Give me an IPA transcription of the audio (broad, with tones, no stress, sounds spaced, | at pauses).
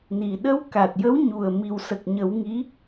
n i˨˩ ɗ ə˧ w k a˨˩ t̚ j ə˧˥ w ɲ u˨˩ ə̯ m i˨˩ w s ə˨˩ k̚ ɲ ə˨˩˦ w ŋ i˧˥